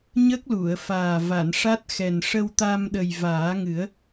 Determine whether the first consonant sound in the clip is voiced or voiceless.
voiced